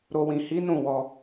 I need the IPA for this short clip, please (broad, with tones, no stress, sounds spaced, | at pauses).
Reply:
ɾ o˨ w ĩ˨ h i˨˦ n ũ˦˨ w ɔ˧